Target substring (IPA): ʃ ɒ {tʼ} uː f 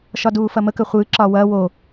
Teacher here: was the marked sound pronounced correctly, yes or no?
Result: no